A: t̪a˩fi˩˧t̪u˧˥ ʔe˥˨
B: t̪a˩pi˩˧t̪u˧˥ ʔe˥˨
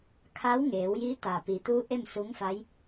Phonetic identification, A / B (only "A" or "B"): B